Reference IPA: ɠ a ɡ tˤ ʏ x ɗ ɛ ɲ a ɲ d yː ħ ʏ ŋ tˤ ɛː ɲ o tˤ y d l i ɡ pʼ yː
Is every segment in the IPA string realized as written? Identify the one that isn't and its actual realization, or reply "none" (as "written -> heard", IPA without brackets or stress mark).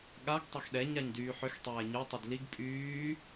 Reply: ŋ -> x